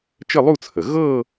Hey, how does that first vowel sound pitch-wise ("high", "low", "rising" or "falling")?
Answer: falling